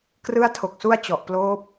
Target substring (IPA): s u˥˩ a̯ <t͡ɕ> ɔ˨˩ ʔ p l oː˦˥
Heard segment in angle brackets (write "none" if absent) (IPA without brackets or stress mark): t͡ɕ